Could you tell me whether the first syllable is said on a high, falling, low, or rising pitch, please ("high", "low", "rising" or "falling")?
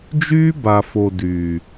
high